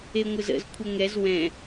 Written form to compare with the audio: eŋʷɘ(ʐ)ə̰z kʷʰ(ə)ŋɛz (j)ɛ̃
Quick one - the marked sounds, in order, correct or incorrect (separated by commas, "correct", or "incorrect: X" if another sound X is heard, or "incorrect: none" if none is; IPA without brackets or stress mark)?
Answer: incorrect: z, correct, incorrect: w